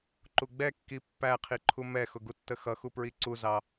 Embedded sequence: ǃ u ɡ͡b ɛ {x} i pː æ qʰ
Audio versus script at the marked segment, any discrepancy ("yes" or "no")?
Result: yes